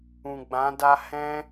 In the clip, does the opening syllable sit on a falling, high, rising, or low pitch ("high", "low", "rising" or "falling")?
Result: low